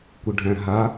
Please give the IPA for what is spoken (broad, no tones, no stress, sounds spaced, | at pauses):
kʷ ə ɖʱ æ̃ ɦ a